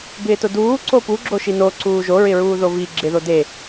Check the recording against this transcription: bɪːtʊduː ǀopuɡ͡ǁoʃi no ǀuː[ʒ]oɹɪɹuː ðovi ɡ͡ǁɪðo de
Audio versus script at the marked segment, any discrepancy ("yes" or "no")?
no